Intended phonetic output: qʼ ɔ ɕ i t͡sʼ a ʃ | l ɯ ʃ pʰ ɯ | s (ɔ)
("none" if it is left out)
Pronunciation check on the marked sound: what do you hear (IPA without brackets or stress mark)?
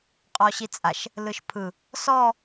ɔ